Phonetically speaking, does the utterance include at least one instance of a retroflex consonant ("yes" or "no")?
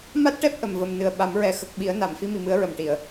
yes